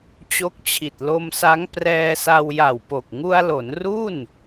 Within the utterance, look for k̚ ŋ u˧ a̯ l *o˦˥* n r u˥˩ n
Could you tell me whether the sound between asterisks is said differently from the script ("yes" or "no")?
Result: yes